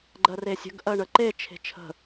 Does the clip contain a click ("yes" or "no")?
yes